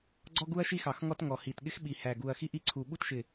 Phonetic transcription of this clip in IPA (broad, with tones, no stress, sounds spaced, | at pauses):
ɡ͡ǀ ɔ˥ ɡ u˥ ɐ̯ ʃ i˥ x ɑ˧˩ x ŋ ɔ˥ t ŋ ɔ˧˩ h i˧˩ t ɠ ɪ˥ x ɓ i˧˩ h æ˧˩ ɡ u˧˩ ɐ̯ x i˥ ʔ i˥ ǀʰ u˧˩ ɓ u˥ t ʃ ɪ˧˩